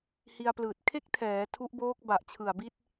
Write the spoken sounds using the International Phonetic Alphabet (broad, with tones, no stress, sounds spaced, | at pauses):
h i˧ a̯ p l ɯː˨˩ t̚ kʰ e˥˩ k̚ tʰ ɛː˩˦ tʰ u˦˥ ʔ b oː˦˥ k̚ b a˨˩ ʔ t͡ɕʰ ɯ˨˩ a̯ b i˥˩ t̚